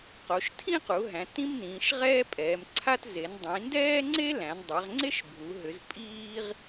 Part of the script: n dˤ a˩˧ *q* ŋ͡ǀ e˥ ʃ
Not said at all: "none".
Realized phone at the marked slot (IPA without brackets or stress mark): ʁ